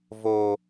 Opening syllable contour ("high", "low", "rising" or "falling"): low